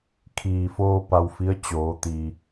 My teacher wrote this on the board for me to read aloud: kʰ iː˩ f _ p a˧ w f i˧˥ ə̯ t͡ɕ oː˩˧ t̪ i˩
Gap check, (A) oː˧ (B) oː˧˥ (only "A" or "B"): A